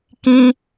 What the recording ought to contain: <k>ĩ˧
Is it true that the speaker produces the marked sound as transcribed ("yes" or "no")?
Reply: yes